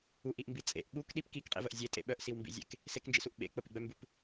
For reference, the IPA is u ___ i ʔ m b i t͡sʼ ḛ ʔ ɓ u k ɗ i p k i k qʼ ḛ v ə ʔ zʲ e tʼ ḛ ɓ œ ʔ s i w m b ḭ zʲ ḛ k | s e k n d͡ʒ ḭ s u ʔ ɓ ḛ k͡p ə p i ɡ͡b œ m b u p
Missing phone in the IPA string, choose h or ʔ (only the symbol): ʔ